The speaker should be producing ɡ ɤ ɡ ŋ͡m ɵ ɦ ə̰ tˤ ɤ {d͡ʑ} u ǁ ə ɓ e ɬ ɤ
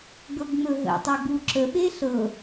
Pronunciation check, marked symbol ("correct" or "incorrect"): incorrect